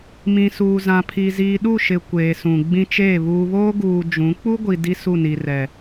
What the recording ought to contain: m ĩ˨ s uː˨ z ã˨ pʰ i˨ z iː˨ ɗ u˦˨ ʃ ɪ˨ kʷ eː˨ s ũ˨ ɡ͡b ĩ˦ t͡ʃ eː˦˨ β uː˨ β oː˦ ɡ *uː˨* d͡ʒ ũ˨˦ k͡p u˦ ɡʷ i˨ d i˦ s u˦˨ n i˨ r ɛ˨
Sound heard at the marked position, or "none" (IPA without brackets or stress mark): uː˨